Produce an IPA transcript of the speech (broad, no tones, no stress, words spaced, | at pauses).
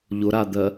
ʎʊɾad̪ɜ